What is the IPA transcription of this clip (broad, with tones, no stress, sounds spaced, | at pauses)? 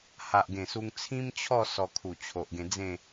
h a˨ ʔ ɡ ẽ˨˩ s u˧ ŋ t͡sʰ ĩ˦ m t͡ɕʰ ɔ˥˧ s ɔ˧ kʰ u˨˩ t͡ɕʰ o˨ ʔ ɡ ẽ˧ d͡z ẽ˥˧